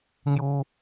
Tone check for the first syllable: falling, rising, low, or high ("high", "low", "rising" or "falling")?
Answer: high